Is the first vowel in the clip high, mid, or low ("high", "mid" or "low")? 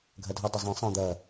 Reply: low